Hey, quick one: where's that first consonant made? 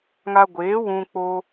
velum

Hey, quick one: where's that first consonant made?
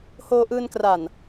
throat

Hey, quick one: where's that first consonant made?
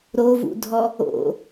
tongue tip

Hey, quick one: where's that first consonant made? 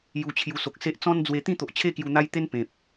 palate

